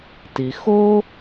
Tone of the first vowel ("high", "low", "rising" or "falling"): low